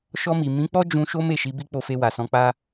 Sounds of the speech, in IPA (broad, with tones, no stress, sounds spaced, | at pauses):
ʃ ɔ˧ m i˨ m ĩ˨˦ k͡p ɔ˦ d͡ʒ ũ˧ ʃ o˦ m e˦˨ ʃ i˨˦ b i˦ k͡p o˧ f e˧ w a˨ s ɔ̃˧ k͡p a˦